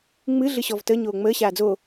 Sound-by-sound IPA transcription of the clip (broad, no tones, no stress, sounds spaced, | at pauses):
ŋ͡m ɨ ɮ ɨ ɕ ɔ v t ə ɲ oː ŋ͡m əː ɕ aː d͡z o